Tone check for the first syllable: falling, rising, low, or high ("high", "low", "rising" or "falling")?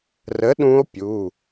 rising